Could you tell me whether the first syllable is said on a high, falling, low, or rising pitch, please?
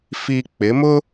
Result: low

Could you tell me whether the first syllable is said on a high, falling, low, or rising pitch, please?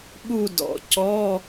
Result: falling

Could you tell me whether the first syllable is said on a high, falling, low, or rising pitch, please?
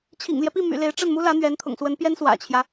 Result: low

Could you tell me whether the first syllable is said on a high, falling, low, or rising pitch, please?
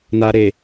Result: low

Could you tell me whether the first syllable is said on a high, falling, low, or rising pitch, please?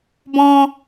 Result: high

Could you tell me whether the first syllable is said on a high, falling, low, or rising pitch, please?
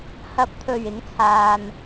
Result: rising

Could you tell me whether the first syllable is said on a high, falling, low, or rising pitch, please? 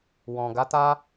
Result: low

